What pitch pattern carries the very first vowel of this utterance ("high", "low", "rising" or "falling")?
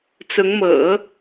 rising